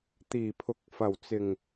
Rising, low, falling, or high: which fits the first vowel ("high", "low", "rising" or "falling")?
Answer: low